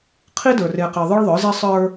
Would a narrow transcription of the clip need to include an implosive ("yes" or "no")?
no